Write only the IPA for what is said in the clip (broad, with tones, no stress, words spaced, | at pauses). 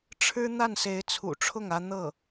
ʈ͡ʂʰɻ̩˥ n̪a˥˩nse˧˥ɪ̯t͡sʰṵ˨˩ʈ͡ʂʰʊ˥˩ŋ ä˥ n̪ɤ˥˩